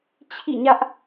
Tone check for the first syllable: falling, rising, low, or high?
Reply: falling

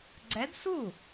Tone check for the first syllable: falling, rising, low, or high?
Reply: rising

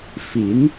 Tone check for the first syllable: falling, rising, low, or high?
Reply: rising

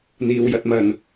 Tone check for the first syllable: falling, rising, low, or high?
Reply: low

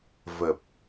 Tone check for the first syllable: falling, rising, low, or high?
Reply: low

